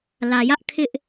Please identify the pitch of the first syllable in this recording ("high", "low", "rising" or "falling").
low